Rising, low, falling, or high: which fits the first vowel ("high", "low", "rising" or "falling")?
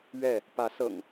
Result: falling